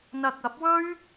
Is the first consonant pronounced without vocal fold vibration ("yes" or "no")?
no